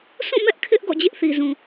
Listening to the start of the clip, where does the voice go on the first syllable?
falling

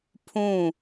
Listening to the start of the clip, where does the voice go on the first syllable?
falling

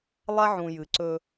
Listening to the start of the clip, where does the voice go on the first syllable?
high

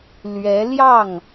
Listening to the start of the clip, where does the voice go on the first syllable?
rising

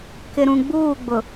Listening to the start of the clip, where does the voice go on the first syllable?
low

